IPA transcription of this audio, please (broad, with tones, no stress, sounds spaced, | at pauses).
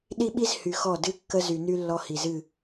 ɗ i˦ ɓ i˦ z h y˨ x ɔ˦˨ d ɨ˦ kː ə˦ z y˨ n y˦ lː ɔ˦ h i˨ z ɨ˦˨